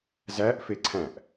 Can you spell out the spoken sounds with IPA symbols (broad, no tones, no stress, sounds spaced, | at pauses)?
z æ ʔ f e ǀʰ æ̃ ʔ